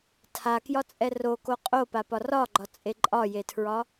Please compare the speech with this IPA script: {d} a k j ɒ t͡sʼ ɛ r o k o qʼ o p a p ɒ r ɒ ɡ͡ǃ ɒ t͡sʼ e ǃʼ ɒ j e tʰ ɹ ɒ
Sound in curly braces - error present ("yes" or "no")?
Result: yes